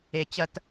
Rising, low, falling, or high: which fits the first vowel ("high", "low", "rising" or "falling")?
low